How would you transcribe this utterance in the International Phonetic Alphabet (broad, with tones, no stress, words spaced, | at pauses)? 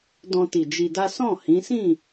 dɔ̃˧ti˨ d͡ʒi˧da˦ sɔ̃˦˨hĩ˨˦sĩ˦˨